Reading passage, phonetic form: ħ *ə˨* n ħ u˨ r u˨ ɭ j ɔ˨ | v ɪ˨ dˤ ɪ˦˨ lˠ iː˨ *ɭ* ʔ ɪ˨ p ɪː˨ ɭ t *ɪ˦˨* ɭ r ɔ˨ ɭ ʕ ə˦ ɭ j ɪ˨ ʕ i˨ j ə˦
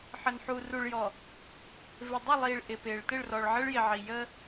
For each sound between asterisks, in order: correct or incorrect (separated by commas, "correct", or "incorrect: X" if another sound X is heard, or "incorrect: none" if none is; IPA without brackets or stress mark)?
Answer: correct, correct, correct